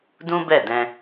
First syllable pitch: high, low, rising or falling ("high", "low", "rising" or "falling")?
high